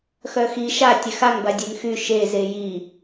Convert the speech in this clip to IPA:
x œ x i ʃ a tʲ ɛ x a ŋ b a dʲ ɛ ŋ x y ʃ e z e j i

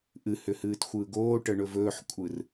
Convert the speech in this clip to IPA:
ʔ ɨ h ʏ h ɨː t xʷ ɯː ɡ oː ʈ ə ɳ ɵ v ɵː ħ kʷʼ ɯ r

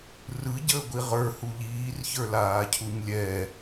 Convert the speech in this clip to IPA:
r ɯ ɟ əː ɡʷ i ʁ ə˞ h u ʎ iː r ç ə˞ l aː cʰ u ɲ lʲ ɛ

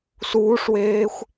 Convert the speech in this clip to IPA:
s uː ʂ w eː xʷ

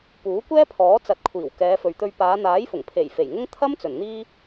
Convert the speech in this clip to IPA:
p uː˨˥ kʷ ɛː˥ pʰ ɔː˨˥ t͡s ɐ˨˥ t̚ kʷʰ iː˨˩ w k ɛː˨˧ f ɵ˨ ɥ t̪ ɵ˧ ɥ p aː˨˧ n̪ aː˨˥ j f ʊ˨˩ ŋ pʰ e˨˩ j f e˨˩ j ŋ ʊ˥ ŋ t̪ʰ ɐ˥ m t͡s ɵ˨˩ n n̪ iː˥

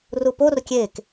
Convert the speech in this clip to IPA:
r u p o r kʲ e k

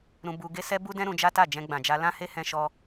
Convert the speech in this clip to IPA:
ɾ ũ˧ b u˧ ɡ e˦ s ɛ˦ b u˦ d ɛ̃˦ ɾ ũ˧ d͡ʒ a˦ t a˦˨ d͡ʒ ɛ̃˧ ɡ͡b ã˨ d͡ʒ a˧ l ã˦ h e˦ h ɛ̃˧ ʃ ɔ˧

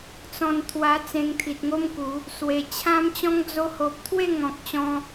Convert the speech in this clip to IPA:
t͡s ɔ̃˧ n t̪ʰ w a˧ t͡s ẽ˧ ŋ t̪ʰ i˨ t̚ ŋ o˦ m k u˨˦ | s w e˨˩ t͡ɕʰ ã˦ m t͡ɕ ɔ̃˦ ŋ d͡z o˧ h o˨ p̚ t̪ʰ w e˥˧ ŋ ɔ̃˨ k̚ t͡ɕ ɔ̃˧

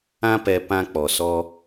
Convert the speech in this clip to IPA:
ã˦ p ɛ˧ p ã˧ k͡p ɔ˨ s ɔ˧

